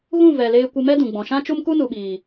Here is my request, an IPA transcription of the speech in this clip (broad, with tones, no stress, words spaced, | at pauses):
ɣũ˦˨vɛ˨leː˧ kʷə˧mɛ˦dũ˨ ɡ͡bɔ̃˨ʃã˦t͡ʃu˦m ku˦nu˨ɓiː˨